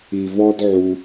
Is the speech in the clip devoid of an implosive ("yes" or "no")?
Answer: yes